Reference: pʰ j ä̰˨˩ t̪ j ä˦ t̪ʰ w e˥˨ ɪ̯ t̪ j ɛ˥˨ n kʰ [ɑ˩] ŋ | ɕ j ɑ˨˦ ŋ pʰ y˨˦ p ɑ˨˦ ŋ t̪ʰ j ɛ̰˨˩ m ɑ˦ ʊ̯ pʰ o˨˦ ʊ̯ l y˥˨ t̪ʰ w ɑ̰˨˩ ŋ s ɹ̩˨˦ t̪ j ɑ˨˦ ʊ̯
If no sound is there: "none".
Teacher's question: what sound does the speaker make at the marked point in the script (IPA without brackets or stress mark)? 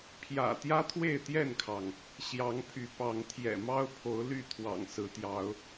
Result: ɑ˩